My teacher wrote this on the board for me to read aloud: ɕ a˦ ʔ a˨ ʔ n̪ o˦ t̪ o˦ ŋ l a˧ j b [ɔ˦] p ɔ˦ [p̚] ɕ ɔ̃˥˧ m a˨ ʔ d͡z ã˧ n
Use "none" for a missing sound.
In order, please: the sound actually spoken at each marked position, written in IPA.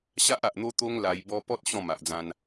ɔ˦, t̚

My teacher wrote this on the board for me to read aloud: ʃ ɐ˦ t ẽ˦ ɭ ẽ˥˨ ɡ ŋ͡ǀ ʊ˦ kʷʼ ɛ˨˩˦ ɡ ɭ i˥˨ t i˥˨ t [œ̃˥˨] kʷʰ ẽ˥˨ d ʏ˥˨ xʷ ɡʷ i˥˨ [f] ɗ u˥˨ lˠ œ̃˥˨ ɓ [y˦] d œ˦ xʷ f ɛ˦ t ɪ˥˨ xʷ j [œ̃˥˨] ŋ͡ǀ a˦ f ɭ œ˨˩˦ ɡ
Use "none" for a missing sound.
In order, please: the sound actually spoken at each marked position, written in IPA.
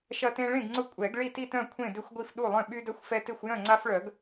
œ̃˥˨, f, y˦, œ̃˥˨

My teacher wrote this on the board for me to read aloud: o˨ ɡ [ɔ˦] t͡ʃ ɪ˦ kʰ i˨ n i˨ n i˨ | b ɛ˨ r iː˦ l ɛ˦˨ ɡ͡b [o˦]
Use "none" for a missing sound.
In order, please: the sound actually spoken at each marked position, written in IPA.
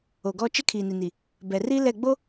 ɔ˦, o˦

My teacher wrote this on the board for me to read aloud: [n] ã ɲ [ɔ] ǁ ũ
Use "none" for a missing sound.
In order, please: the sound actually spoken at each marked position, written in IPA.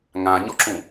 ŋ, ɔ

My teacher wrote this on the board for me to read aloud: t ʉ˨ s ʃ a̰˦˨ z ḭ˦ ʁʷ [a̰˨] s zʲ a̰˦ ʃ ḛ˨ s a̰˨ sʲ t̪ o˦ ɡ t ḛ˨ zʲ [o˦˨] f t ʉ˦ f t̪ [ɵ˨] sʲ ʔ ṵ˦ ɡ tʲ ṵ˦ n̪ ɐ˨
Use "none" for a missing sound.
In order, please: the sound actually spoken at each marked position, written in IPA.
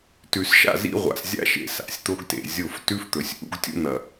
a̰˨, o˦˨, ɵ˨

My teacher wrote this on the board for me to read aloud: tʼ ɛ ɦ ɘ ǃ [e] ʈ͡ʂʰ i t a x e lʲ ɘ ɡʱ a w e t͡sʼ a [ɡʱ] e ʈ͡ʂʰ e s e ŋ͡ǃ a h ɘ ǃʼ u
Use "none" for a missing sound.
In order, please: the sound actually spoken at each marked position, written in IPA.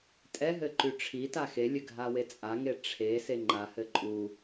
y, ŋ

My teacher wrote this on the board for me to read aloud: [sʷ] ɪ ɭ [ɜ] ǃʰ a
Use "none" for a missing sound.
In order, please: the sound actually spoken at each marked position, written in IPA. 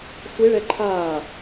sʷ, ɛ

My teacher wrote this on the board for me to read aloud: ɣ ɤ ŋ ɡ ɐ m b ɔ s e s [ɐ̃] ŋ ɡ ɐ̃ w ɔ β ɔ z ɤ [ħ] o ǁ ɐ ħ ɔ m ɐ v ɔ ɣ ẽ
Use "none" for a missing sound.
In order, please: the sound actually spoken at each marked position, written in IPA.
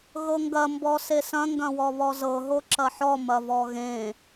ɐ̃, ɦ

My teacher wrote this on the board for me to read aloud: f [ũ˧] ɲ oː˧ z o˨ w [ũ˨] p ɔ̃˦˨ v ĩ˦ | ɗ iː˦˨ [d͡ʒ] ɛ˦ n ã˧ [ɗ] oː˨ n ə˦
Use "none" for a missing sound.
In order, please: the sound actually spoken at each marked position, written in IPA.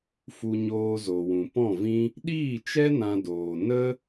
u˧, ũ˨, t͡ʃ, d

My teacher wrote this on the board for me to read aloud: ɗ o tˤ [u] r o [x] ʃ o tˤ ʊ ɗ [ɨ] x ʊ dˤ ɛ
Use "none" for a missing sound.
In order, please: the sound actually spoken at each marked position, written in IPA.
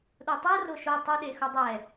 u, none, e

